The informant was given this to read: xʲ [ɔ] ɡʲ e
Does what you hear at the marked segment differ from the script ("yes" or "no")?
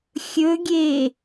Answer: yes